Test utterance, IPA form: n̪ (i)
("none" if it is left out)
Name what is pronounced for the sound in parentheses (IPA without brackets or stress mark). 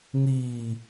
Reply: iː